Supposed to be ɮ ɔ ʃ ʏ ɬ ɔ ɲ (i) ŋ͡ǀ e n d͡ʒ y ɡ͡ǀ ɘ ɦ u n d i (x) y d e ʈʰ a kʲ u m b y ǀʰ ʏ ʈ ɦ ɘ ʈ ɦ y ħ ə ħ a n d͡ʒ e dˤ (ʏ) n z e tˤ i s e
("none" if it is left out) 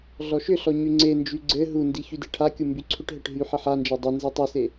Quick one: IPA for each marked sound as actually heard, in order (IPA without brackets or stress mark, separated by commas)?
y, ç, ʏ